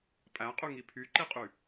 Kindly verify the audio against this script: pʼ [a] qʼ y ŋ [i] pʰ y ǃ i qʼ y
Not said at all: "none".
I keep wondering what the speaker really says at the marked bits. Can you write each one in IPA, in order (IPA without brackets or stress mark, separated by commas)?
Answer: æ, i